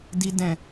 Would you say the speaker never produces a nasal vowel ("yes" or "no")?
no